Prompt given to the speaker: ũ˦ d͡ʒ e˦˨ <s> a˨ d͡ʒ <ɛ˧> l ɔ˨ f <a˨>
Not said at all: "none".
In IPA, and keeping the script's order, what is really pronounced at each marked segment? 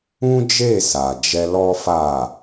s, ɛ˧, a˨

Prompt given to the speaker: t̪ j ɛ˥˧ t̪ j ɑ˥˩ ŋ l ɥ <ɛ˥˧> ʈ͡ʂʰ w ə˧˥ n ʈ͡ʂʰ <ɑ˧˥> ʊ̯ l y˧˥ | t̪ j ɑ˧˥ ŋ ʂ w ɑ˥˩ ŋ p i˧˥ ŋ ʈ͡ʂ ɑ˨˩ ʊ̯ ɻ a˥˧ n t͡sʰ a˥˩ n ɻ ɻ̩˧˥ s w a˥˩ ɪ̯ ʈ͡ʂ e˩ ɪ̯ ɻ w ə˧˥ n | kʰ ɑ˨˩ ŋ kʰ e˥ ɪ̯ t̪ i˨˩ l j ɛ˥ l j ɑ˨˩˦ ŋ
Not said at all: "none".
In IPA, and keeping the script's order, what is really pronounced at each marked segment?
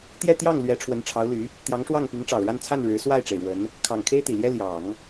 ɛ˧˥, ɑ˧˥

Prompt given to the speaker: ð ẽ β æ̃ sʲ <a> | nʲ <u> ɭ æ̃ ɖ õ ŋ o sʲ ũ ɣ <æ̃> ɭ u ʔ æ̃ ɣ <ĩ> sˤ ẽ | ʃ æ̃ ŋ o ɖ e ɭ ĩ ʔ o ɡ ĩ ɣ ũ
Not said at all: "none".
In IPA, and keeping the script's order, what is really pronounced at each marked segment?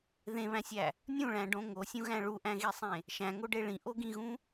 æ, ũ, æ̃, i

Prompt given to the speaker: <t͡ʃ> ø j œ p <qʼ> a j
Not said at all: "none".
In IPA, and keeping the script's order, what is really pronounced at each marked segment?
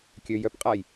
kʲ, qʼ

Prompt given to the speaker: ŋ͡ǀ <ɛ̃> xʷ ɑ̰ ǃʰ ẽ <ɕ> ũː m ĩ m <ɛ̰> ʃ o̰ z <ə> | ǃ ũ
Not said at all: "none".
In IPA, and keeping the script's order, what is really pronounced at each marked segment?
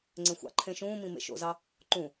ẽ, ʃ, ḛ, ɑ

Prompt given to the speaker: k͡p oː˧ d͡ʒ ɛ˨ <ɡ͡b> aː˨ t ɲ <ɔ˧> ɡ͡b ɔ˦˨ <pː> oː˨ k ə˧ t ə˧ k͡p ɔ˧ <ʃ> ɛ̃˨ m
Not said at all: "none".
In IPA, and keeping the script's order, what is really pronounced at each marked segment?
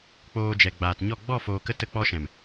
ɡ͡b, ɔ˦˨, f, ʃ

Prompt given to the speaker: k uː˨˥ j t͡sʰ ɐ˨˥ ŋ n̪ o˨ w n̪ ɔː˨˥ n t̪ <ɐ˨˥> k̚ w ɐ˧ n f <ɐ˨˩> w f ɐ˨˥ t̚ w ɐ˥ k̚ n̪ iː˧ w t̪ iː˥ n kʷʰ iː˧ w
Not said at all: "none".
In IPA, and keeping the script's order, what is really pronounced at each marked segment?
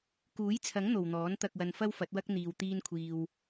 ɐ˧, ɐ˥

